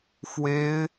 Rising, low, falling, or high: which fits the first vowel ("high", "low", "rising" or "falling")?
high